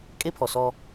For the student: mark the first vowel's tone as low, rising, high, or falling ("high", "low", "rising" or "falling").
high